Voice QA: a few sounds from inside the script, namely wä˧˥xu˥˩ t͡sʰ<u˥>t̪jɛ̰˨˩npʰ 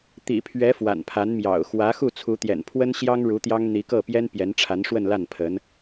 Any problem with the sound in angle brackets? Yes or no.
yes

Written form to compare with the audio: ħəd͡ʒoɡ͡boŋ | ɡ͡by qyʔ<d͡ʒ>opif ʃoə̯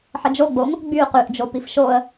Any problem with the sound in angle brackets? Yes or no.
no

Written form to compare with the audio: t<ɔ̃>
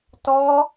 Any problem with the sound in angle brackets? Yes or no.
yes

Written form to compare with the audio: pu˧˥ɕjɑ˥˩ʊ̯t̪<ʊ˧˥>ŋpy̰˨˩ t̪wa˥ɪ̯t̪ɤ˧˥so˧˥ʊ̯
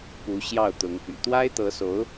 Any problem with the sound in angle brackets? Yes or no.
no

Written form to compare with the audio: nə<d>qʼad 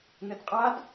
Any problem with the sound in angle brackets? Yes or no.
no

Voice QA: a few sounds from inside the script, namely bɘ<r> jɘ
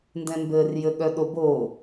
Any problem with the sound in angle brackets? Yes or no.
no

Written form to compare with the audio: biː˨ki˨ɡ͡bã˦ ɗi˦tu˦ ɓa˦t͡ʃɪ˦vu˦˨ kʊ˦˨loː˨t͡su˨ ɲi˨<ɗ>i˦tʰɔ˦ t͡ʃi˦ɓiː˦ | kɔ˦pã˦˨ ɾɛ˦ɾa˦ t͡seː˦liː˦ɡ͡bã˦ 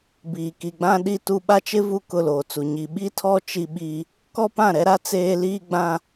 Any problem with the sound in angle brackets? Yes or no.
yes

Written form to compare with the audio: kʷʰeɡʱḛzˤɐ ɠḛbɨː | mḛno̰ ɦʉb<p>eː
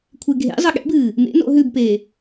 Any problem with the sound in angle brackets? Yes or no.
no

